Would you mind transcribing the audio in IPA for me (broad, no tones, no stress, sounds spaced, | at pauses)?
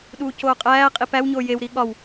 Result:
ɗ uː c oː qʼ æː qʼ i p æ w ɲ oː j e w ɾ i ɠ ɒ w